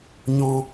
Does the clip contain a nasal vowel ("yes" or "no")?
yes